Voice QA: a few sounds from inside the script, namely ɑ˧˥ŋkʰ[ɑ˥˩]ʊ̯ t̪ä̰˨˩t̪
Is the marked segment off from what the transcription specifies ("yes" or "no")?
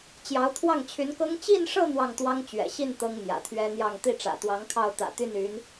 no